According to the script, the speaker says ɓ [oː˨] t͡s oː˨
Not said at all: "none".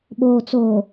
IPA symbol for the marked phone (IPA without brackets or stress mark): oː˨